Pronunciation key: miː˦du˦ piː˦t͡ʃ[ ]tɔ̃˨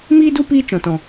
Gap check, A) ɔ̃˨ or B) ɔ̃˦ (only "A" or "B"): A